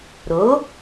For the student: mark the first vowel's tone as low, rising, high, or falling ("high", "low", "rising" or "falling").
rising